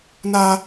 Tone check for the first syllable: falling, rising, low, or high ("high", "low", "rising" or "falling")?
high